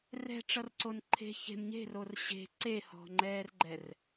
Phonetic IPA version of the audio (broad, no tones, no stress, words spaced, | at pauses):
rɛ̤ʈ͡ʂʌrǀon ǃʰe̤ çe̤m ɲe̤ror ɕe̤ ǀehɔ̤ŋ͡ǃɛːrɡ͡ǃɛr